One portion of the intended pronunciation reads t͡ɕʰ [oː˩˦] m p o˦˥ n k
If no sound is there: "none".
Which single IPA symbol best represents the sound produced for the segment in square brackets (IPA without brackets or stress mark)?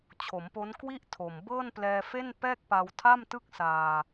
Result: o˩˦